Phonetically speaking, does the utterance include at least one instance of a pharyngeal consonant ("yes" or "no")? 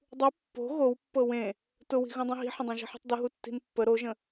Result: yes